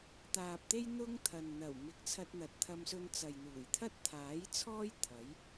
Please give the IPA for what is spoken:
t̪aː˨p̚t̪e˥j n̪ʊ˥ŋt̪ʰɐ˨n n̪ɐ˨˩wmɪ˨k̚ t͡sʰɐ˧t̚n̪ɐ˨t̚t̪ʰɐ˧msɵ˧n t͡sɐ˨jn̪uː˨˩j t̪ʰɐ˥t̚t̪ʰaː˨˥jt͡sʰɔː˥j t̪ʰɐ˨˥j

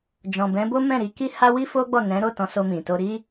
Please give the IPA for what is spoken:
d͡ʒɔ̃˨bɛ̃˨˦bo˦ mɛ̃˦˨ɾi˧ki˦ ha˦wi˦fo˦ɡ͡bɔ˦˨ nɛ̃˨˦ɾo˦˨ tɔ̃˧so˧mĩ˨ to˧ɾi˦

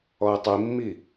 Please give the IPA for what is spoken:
ɔɪ̯tˤimːi

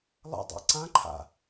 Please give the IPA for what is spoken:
lˠə̰ dˤa̰ǀãǃʰa̰

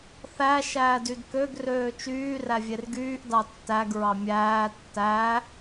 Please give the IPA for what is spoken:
θæ ʃæːdydkøɡ røːt͡ʃyː rævʲerɡyːʔ dɑtːæɡ ɹɑmʲæː tːæ

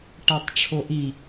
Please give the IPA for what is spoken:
ʈætˤʈ͡ʂʰoʔi

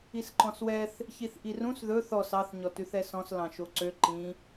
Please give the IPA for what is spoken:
isǃɔ̃swɛθ | çiθʔirũs ðɵ θɔs ɑθ ɲɔtʉθɛsɔ̃s lɑ̃ʃoǀø ǃĩ

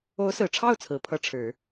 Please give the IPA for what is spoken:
o˧˥ʊ̯sɹ̩˨˩ʈ͡ʂʰɑ˥˩ʊ̯ t͡sʰɹ̩˨˩pʰɤ˥˩ ʈ͡ʂʰɻ̩˨˩˦

